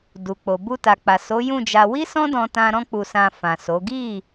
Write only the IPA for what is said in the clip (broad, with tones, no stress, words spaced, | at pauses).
du˨k͡po˨ bu˧ta˨k͡pa˨ so˨˦jũ˦˨d͡ʒa˧ wi˦sɔ̃˦dɔ̃˧tã˧ ɾɔ̃˦k͡pu˧sã˧ fã˨so˨˦ ɡi˦˨